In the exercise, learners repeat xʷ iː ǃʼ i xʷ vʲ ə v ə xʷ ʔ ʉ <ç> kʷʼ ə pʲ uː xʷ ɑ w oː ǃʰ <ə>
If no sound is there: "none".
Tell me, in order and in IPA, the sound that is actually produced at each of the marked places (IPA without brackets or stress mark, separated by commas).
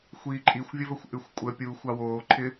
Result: xʷ, ɪ